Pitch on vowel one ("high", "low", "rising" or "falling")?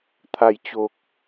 low